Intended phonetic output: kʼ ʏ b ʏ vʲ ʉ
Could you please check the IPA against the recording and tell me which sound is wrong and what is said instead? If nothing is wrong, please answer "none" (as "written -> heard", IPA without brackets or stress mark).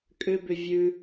none